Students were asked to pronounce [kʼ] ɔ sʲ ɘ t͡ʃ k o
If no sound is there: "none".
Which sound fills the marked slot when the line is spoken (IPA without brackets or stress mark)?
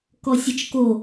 k